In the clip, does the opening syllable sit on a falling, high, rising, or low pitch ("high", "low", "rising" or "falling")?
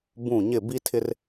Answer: falling